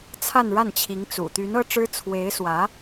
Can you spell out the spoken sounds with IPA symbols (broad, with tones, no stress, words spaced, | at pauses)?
t͡sʰa˥˧nɻa˥˩nt͡ɕʰi˧˥ŋt͡sṵ˨˩ t̪y˧˥nɤ˥ʈ͡ʂɻ̩˥ t͡sʰwe˧˥ɪ̯swä˧˥